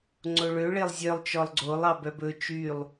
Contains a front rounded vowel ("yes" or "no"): yes